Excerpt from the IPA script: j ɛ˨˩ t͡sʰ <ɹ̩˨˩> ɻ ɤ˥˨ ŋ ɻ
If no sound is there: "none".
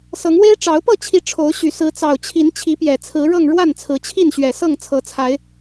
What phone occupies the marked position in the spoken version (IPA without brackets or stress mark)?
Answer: ɹ̩˨˦